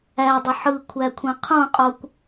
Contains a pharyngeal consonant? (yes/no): yes